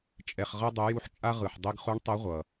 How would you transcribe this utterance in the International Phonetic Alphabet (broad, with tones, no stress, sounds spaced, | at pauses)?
t͡ʃʼ ɛ˩ χ ʁ ʌ˧ dˤ ɛ˩˧ j u˧ ħ t͡ʃʼ a˥ ʁ ɯ˩ ħ dˤ i˧ ɡ χ u˧˥ ɳ tˤ ʌ˧˥ ʁʷ ʌ˩